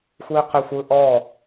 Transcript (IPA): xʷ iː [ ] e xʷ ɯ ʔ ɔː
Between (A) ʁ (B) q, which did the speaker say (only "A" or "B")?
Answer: B